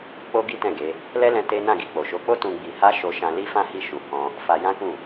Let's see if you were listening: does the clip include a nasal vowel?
yes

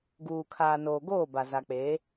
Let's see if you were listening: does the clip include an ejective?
no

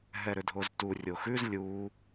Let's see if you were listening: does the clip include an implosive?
no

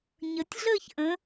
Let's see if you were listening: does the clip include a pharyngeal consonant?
no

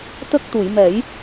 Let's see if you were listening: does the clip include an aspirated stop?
no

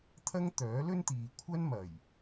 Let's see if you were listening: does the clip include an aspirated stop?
yes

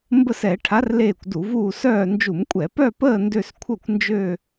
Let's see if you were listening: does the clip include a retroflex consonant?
yes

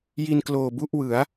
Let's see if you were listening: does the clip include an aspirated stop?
no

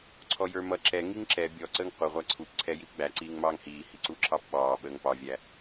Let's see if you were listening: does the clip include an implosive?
yes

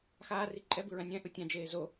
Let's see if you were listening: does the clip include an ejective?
yes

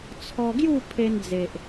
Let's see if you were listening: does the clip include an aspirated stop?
yes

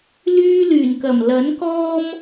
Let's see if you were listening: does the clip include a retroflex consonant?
no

